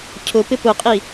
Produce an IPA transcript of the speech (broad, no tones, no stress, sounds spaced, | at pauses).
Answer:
cʰ ʊ p ɪ p ʊ qʼ i